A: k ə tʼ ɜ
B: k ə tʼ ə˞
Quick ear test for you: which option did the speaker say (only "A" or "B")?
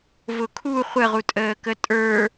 B